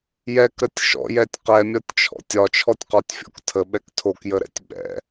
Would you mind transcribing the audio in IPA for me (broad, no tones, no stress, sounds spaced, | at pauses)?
j ɛ k ɾ ə tʲ ʃ ɔ̰ j ɛ tʲ q ɛ mʲ ɒ tʲ t͡ʃʰ ɔ̰ tʲ ɒ t͡ʃʰ ɔ tʲ q ɒ tʲ fʲ ɔ̰ k tʰ ə ɓ ɛ k tʰ o k j ə ɾ ɛ̰ tʲ ɓ ɛ̰